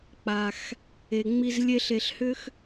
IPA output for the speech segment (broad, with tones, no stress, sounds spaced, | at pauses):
k͡p a˩ x | e˩ ŋ͡m i˦ z lʲ e˥ ɬ e˨ ɬ h ʏ˥ x